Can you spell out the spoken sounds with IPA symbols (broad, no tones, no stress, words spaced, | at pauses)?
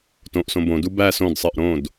tõʔsõ bõdu bæ sõdsˤɜʔ ɾõd